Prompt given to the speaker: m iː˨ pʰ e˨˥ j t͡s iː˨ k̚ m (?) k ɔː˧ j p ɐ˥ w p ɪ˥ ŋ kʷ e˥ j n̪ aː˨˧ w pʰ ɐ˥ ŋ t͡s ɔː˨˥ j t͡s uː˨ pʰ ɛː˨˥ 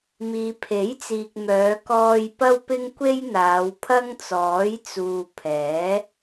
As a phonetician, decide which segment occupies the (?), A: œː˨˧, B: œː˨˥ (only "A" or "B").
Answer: A